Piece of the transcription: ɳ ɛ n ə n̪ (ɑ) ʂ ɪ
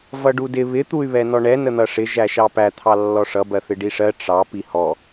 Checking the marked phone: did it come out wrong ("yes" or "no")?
yes